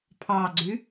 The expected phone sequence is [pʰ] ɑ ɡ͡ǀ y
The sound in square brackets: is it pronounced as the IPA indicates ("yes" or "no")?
yes